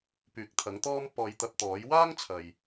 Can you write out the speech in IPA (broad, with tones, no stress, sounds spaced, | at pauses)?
p yː˨ k̚ t̪ʰ ɐ˨˥ ŋ t̪ ɔː˧ m p ɔː˨˧ j t̪ ɐ˧ p̚ t̪ ɔː˨˥ j w aː˥ ŋ t͡sʰ ɐ˨ j